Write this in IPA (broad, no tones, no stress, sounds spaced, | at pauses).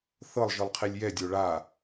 θ ɤ lˠ ʒ ɯ lˠ qʰ i lʲ j ɛ dʲ o ɭ a